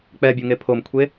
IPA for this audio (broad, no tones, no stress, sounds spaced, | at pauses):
k͡p ɛ bʲ u ŋ e pʰ o m kʷʰ e